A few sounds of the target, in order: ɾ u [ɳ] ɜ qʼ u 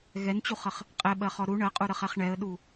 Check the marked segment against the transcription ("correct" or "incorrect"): correct